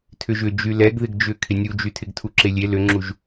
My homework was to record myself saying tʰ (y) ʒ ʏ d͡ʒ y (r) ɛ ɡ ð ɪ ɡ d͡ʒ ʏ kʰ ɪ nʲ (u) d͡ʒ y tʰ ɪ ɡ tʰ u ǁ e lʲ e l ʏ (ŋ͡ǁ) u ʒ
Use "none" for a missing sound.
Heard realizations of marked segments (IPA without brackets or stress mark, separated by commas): ʏ, l, u, ŋ͡ǁ